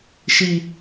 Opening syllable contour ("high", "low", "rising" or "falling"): high